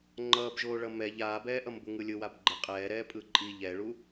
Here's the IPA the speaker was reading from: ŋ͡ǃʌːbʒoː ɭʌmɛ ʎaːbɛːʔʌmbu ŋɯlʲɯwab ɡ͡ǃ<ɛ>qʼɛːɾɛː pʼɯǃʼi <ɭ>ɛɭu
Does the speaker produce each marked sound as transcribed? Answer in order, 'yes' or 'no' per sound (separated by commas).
no, no